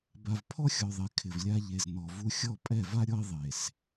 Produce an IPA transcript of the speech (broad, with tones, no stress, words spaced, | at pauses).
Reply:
ba˨vpʰɔ˦xʲɔ˨ðˤe˨ kʰɪ˨vlʲa˦ ʎe˨znɔ˨ vu˦ xʲɔ˦˨pʼɛ˦˨va˦ɾʲɔ˦i̯ ðˤe˨s